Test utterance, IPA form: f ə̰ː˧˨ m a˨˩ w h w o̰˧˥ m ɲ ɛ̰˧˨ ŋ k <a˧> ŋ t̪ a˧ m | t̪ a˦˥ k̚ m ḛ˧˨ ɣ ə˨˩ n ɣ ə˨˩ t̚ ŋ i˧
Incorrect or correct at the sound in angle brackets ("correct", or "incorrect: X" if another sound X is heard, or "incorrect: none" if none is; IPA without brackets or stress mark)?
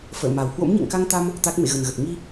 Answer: correct